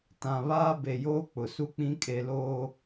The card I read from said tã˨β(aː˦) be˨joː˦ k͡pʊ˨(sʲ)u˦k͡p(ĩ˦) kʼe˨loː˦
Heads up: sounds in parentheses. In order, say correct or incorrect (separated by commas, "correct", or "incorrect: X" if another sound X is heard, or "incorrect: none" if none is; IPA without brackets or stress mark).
correct, incorrect: s, correct